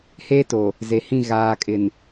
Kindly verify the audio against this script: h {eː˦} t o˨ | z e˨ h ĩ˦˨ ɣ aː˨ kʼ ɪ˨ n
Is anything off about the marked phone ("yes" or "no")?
no